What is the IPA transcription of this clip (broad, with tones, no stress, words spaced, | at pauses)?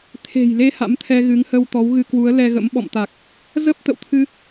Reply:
t̪ʰe̤˨˩jle˧ ha̰˧˥mt̪ʰɛ˧ɣɨ˨˦ŋ hə˧w t̪ɔ˨˦wɣɨ˧kwu˨˦ə̯ lɛ˧ɣə̰˧˥m ɓɔ̰˧˨mt̪a˨˩k̚ | zə˦˥p̚ t̪ə̰˧˨wt̪ʰɨ˧